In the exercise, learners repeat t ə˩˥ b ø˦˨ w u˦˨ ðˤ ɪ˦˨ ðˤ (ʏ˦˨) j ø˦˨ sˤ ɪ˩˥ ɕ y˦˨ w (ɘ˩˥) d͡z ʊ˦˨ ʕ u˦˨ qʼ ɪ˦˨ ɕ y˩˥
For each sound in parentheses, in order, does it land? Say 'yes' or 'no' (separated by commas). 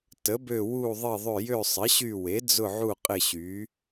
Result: yes, no